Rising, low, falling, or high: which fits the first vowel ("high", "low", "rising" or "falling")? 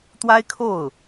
high